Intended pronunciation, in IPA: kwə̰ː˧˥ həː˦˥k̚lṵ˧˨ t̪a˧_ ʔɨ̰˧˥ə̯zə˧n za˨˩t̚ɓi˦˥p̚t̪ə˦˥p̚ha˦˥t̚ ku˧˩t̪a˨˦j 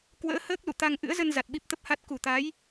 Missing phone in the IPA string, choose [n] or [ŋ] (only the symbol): ŋ